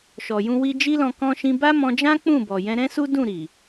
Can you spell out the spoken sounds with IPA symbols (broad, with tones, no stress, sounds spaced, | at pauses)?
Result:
ʃ ɔ˨ j ũ˧ w i˧ d͡ʒ i˦ l ɔ̃˧ k ɔ̃˧ ʃ ĩ˧ b a˦ m ɔ̃˧ d͡ʒ ã˦ k͡p ũ˦˨ b ɔ˨ j ɛ̃˧ ɾ ɛ̃˦ s u˦ d ũ˦˨ ɾ i˨